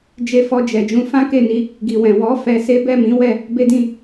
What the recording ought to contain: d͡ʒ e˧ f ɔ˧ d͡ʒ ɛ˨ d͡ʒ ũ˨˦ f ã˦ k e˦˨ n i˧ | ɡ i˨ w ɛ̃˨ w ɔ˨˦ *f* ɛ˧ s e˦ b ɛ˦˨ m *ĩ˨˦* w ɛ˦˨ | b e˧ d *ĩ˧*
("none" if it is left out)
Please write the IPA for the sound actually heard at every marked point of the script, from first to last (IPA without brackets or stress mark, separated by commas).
f, ĩ˨˦, ĩ˧